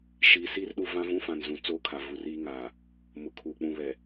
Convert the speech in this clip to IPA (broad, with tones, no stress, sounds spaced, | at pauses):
ʃ iː˨ s iː˦ r ɗ u˨ v ã˦ v ũ˦ f ã˨ n z ũ˨ t͡s oː˦ kʰ a˨ v u˨ r iː˦ ŋ aː˨ | m ʊ˨ kʰ uː˨ k͡p ũ˨ β ɛ˨